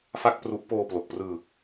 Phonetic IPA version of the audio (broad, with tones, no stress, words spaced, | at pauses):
fa˥˩k̚pru˦˥ʔ poː˧plo˨˩k̚prɯː˧